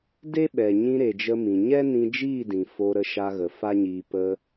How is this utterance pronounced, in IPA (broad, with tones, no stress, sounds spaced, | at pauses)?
d e˦ ɓ ɛ˨ ɲ ĩ˧ ɾ e˨ d͡ʒ ə˧ m ĩ˨ ɲ ɛ˦ n ĩ˧ d͡ʒ iː˦˨ d ĩ˨ f o˧ ɾ ə˧ ʃ a˧ ɣ ə˨ f a˦ ɲ iː˧ p ə˧